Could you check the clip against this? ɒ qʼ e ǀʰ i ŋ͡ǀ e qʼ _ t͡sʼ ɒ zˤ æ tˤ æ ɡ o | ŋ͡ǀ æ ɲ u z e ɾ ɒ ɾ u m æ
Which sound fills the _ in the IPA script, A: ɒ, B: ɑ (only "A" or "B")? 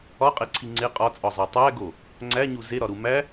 A